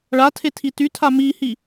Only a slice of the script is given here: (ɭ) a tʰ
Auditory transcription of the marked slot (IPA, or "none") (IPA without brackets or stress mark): ɭ